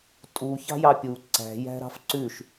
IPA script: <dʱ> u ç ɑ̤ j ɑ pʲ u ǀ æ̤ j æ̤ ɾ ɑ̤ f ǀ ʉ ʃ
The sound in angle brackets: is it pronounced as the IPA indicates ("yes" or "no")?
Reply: no